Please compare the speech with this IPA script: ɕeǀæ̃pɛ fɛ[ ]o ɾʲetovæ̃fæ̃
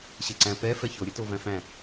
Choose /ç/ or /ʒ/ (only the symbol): ç